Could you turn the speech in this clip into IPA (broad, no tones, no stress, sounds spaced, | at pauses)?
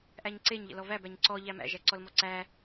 ʔ æ ɲ ǀ e ɲ ʎ ə̰ l ɔ v æ b æ ɲ ǀ ɔ ʎ æ m æ̰ ʒ æ ǀ ɔ l m ɔ ǀ æ